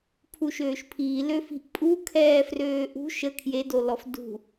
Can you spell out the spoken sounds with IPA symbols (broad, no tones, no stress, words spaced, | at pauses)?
pʰuʃøːʃpʰiː løfi̤ʔpʼu kʰɛːfrøːʔṳ ʃə kʰjedolɔf dṳ